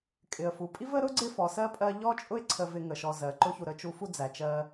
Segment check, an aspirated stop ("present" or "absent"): present